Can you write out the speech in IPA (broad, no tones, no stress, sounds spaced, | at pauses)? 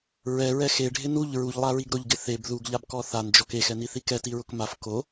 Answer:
ɹ ɛ ɹ ɛ x e ɖʱ ɪ n u ʎ ɹ u ʎ lˠ a ɹ i ɡ ɾ ʊ ʎ ɡ ɪ θ e b ð u ɡ ʎ a b k ɔ θ a n d͡ʒ ɔ k e x ɛ n i θ i k ɛ t i ɹ ʊ k m a f k o